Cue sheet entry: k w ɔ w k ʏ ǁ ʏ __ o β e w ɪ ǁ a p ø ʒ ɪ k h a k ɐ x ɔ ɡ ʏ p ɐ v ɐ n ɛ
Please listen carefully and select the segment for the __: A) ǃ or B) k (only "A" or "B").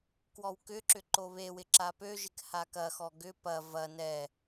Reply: A